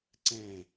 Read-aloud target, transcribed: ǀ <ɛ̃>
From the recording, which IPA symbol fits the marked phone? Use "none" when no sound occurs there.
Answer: ɛ̃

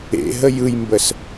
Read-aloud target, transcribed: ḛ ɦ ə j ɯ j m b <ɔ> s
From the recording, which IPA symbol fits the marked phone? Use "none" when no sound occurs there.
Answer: ə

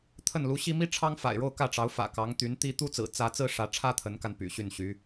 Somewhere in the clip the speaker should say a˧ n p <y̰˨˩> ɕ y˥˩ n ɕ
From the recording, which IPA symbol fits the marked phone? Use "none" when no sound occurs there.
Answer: y̰˨˩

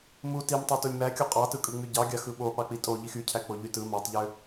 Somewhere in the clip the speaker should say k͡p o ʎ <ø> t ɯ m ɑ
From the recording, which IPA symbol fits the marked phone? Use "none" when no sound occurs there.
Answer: y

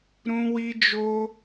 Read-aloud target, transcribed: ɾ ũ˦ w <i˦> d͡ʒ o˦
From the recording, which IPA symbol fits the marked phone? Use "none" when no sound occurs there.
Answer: i˦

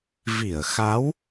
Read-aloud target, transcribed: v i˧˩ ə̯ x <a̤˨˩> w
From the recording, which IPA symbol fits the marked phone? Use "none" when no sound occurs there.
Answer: a˨˦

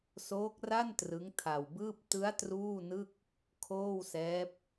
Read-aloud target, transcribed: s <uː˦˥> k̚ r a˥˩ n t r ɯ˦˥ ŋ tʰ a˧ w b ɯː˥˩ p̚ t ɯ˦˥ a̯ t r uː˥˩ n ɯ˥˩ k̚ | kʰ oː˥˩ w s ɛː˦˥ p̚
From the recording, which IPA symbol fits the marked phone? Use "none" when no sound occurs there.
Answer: oː˦˥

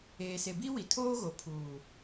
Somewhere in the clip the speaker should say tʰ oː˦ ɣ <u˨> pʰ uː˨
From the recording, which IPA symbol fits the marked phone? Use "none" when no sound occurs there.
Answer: o˨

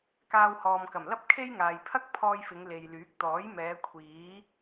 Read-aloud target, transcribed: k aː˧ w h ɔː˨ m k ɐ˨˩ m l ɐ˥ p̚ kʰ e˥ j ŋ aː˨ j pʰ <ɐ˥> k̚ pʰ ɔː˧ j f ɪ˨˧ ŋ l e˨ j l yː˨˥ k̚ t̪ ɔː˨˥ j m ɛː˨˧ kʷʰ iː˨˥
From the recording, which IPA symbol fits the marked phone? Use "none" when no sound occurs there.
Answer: ɐ˥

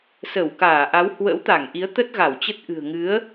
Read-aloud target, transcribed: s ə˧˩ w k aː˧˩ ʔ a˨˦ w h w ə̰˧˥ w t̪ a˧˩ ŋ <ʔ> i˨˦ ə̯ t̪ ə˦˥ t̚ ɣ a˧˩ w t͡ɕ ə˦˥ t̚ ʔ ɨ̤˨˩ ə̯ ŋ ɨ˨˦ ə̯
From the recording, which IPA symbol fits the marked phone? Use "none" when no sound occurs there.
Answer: ʔ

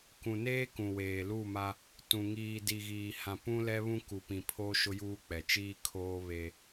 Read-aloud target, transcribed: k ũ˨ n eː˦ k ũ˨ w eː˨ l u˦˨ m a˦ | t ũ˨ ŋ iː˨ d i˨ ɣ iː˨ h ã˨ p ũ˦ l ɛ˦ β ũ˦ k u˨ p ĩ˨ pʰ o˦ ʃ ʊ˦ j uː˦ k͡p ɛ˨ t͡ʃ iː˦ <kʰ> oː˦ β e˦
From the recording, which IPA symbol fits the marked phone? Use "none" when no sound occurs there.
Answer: kʰ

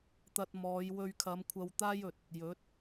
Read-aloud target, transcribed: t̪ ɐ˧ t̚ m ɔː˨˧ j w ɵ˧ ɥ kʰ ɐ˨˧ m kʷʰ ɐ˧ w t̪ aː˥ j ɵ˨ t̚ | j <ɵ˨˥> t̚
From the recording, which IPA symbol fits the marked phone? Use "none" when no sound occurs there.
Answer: ɵ˨˥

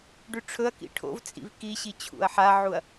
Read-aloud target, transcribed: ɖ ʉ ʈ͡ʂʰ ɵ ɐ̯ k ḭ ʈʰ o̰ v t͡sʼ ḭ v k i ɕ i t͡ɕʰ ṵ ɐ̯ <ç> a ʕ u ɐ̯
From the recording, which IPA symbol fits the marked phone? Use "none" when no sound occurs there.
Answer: ħ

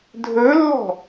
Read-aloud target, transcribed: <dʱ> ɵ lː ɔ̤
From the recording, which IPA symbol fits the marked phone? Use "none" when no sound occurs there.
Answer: dʱ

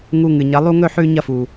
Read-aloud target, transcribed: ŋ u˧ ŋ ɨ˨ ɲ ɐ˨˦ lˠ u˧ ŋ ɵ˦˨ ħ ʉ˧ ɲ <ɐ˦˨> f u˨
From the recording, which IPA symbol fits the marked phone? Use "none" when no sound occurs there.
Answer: ɐ˦˨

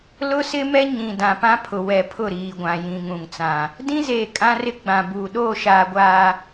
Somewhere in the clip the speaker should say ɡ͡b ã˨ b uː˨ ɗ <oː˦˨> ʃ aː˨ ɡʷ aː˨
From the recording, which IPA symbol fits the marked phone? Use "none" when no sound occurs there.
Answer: oː˦˨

